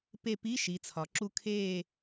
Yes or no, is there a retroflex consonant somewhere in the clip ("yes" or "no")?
no